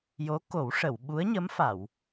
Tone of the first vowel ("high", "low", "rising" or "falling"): rising